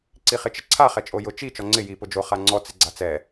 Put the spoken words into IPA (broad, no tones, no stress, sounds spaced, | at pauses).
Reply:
ǀ i χ ɪ t͡ʃ ɪ ǀʰ a χ ɛ t͡ʃʼ o j ʊ t͡ʃ i t͡ʃ ɔ ŋ͡ǀ ɪ j i p ʊ d͡ʒ o χ a ŋ͡ǀ ɔ t͡s ɪ ɡ͡ǀ a t͡s ɛ